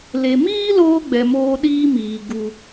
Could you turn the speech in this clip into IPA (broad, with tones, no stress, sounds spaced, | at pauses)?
l e˨ m iː˦ l oː˧ ɡ͡b ɛ˨ m oː˧ ɗ iː˧ m iː˨ ɡ u˨